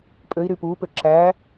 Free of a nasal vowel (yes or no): yes